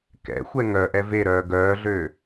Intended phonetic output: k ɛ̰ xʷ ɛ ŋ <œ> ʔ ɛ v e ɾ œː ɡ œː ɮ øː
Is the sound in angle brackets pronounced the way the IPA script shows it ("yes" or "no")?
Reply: yes